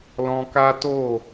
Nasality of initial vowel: nasal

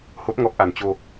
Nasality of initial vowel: oral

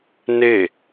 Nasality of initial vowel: oral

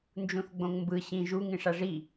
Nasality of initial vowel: nasal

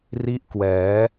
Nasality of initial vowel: oral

